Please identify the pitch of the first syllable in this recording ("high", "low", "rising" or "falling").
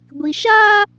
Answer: low